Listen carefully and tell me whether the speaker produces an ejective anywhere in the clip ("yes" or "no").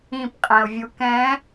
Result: yes